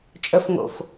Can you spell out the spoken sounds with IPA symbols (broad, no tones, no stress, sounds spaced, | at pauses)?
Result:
t͡ʃʼ ə f ŋ o̰ f